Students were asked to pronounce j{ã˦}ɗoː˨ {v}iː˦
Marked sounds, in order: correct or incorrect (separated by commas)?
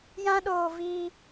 correct, correct